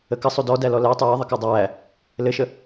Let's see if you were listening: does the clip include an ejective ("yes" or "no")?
no